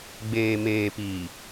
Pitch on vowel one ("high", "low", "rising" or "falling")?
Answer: low